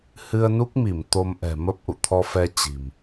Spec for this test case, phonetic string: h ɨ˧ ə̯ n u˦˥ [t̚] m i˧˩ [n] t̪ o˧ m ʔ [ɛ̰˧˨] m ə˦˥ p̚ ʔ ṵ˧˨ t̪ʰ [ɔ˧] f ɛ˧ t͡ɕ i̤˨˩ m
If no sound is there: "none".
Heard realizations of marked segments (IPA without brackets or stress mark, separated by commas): k̚, m, ɛ̤˨˩, ɔ˧